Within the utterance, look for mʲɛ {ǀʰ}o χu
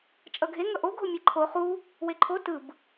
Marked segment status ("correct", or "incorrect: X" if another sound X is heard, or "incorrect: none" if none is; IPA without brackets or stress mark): incorrect: ǃʰ